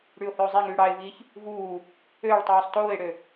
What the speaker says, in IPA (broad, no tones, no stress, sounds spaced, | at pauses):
ɽ y ʊ̯ h ø ʊ̯ zˤ e ŋ yː ɽ ɑ ɪ̯ v iː ç | v uː | ø ɭ tˤ yː sˤ t oː ɪ̯ ɽ ø